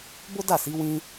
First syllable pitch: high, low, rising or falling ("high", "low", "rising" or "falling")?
high